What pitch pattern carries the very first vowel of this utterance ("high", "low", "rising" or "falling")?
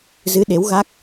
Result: rising